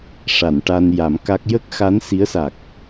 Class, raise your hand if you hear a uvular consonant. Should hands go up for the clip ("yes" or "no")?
no